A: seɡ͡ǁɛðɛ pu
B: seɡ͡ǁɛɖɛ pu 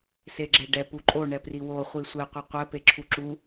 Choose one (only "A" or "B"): B